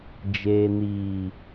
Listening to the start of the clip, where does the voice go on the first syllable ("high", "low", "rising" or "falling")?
low